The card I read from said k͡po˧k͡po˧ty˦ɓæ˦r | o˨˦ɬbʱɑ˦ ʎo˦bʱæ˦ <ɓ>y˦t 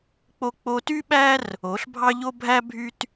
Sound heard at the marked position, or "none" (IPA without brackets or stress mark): bʱ